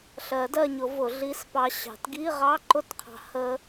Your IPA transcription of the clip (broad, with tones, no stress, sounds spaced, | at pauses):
ɬ ɜ˨˩˦ d ɜ˦˨ ɲ ʊ˨˩˦ v ʊ˨˩˦ ɮ i˧˥˧ s p ɑ˦˥ ɕ ɑ̤˨˩˦ t ɡ i˧˥˧ ʁ ɑ˧˥˧ ǃ ʊ˦˨ t qʰ ɑ̤˨ h ə˦˥